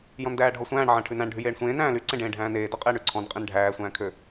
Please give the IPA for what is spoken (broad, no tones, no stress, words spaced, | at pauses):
jɔ̃ndæːɖʱɔsʷæ̃ːɳ ʕæ̃ʈʰʉnæ̃ɳ ɖʱyjeːɳsʷẽː næ̃ːly ǀẽɖẽːɖʱæ̃ːneː dɔqʼeːɳyǀʰɔ̃n qʼẽnɖʱæː sʷæ̃ːkʰø